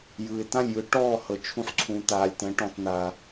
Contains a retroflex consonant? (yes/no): yes